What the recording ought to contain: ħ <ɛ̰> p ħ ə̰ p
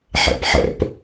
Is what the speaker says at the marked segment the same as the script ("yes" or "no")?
yes